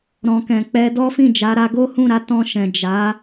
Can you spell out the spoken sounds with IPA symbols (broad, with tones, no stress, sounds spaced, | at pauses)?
ɾ ɔ̃˨ k ɛ̃˨ k͡p ɛ˧ d ɔ˦ f ĩ˦˨ d͡ʒ a˨˦ ɾ a˧ ɡ o˦ h ũ˦˨ ɾ a˨˦ t ɔ̃˧ ʃ ɛ̃˨ d͡ʒ a˨˦